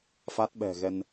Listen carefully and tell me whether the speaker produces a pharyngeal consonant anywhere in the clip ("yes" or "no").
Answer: no